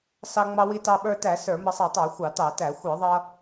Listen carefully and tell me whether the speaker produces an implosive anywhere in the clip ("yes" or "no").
yes